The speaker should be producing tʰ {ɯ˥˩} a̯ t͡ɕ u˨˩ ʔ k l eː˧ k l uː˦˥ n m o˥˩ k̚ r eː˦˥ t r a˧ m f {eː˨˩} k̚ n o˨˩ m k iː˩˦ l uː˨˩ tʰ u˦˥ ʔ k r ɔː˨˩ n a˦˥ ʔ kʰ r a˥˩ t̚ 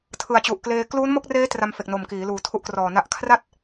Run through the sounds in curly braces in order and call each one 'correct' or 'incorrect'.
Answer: incorrect: ɯ˨˩, incorrect: e˨˩

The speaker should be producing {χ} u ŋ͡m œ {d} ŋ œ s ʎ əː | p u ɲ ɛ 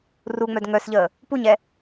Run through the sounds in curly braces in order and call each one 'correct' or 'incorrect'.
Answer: incorrect: r, correct

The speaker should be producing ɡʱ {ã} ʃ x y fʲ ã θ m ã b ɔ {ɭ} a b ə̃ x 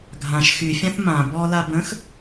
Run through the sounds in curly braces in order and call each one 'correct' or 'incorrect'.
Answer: correct, incorrect: l

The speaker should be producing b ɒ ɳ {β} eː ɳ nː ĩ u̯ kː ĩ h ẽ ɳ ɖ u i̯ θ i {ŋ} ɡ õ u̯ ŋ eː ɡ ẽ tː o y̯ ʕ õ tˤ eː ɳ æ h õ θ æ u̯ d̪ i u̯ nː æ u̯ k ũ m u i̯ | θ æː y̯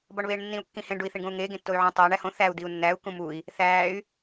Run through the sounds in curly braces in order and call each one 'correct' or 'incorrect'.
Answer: correct, incorrect: ɳ

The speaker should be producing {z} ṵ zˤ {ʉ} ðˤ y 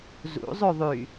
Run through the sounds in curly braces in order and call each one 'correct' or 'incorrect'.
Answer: correct, correct

